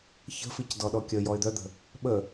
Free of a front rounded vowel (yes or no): no